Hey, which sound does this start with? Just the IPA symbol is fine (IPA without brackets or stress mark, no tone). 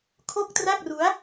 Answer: kʰ